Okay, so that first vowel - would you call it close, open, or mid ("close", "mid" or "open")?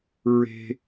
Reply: mid